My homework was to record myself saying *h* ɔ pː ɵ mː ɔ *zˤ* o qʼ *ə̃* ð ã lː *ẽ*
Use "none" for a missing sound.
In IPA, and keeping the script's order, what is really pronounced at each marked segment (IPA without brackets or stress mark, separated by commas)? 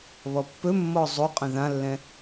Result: β, zˤ, ə̃, ɛ̃